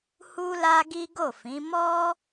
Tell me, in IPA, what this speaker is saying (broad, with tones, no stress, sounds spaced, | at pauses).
h u˦ l a˦ ɡ i˦ ɡ o˦˨ f ĩ˨˦ m ɔ˦